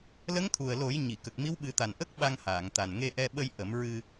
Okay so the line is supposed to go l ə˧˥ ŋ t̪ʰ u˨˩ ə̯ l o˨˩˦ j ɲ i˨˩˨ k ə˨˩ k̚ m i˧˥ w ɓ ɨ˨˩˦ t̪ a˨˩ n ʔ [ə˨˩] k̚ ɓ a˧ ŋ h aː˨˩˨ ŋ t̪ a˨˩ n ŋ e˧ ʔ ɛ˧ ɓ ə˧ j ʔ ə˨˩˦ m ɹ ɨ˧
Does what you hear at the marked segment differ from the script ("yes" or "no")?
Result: yes